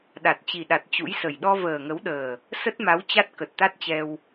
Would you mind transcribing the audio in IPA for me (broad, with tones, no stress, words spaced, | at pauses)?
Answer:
ɗa˨˩t̚t͡ɕi˨˩ɗa˨˩t̚ t͡ɕṵ˧˥jsə˨˩j ɗɔ˧vəː˨˩ŋə˨˦wɗəː˨˩ | sə˦˥t̚ma˨˦w t͡ɕa˦˥t̚kə˨˩t̚t̪a˦˥t̚t͡ɕɛ˧w